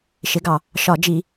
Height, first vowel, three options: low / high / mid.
high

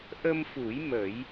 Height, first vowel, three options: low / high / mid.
mid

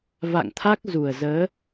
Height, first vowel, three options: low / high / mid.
low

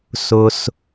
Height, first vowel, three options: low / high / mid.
high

